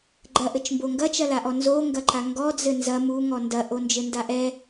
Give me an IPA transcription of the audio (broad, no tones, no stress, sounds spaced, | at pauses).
ɡ͡ǃ ɐ ʔ ɘ t͡ʃ m b o ŋ ɡ ɐ t͡ʃ ɐ l a ʔ ɔ n z o ŋ ɡ ɐ ǃ a ŋ ɡ ɔ d͡z ɘ n z ɐ m u ŋ ɔ n d ɐ ʔ o n d͡ʒ ɘ n d a ʔ ɛ